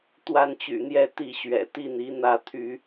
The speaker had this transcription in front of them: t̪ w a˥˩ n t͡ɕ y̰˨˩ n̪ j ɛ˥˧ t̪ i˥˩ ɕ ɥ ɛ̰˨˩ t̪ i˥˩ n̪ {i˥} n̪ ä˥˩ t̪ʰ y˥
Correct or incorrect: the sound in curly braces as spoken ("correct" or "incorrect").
incorrect